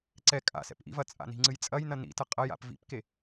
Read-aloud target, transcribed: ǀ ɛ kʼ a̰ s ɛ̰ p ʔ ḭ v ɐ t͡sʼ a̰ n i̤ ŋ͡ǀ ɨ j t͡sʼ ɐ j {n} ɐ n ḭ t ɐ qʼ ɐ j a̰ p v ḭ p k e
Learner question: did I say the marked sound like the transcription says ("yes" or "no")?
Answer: yes